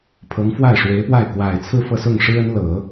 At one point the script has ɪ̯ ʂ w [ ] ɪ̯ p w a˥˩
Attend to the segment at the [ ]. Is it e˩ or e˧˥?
e˧˥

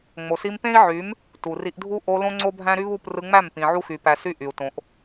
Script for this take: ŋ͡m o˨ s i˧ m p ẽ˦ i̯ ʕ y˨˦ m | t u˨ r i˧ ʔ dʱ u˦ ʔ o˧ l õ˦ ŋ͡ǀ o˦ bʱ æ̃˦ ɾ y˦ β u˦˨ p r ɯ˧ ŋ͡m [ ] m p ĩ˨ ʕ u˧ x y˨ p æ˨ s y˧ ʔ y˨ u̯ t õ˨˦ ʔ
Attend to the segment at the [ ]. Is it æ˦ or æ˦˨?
æ˦˨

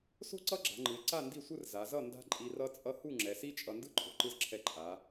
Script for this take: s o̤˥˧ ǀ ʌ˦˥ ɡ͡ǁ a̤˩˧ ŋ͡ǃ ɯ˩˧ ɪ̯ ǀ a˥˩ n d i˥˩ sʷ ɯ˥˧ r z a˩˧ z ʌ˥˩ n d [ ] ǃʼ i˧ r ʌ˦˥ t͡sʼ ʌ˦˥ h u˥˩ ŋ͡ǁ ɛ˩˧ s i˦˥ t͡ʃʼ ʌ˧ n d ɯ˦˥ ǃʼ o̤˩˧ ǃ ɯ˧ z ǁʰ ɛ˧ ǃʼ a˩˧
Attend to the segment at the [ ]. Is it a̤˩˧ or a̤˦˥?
a̤˦˥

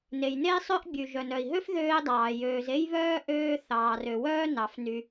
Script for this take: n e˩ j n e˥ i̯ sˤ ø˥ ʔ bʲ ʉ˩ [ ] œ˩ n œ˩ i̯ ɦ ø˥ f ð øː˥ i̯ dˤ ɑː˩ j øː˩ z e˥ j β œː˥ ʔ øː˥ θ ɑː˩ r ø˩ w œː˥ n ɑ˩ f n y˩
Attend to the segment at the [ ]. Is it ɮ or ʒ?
ʒ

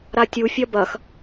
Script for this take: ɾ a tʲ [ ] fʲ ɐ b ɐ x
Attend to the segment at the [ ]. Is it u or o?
u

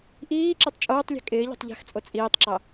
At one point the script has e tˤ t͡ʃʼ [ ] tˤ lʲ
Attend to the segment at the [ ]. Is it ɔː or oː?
oː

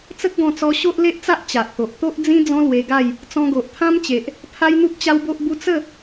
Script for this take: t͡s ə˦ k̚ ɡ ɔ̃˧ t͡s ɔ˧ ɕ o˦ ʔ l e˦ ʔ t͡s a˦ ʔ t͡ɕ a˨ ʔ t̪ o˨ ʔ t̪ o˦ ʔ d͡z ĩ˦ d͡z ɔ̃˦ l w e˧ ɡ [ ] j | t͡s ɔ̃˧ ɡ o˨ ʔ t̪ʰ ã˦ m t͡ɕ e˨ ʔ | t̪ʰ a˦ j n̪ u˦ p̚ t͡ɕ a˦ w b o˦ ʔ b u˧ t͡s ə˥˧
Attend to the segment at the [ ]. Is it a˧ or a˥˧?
a˥˧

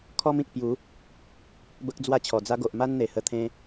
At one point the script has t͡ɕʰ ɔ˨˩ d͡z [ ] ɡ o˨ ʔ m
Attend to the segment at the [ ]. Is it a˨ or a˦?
a˦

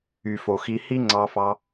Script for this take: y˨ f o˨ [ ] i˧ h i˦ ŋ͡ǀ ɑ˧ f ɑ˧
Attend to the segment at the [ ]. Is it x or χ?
x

